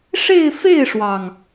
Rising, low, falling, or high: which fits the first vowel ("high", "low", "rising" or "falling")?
falling